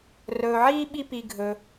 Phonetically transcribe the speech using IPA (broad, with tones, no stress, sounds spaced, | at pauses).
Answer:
r ɵː˨ ʕ iː˥ ɓ i˦ p i˨ ɡʱ ɵ˨